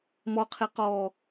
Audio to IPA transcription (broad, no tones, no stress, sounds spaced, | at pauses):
m ɔ qʰ e q ɔː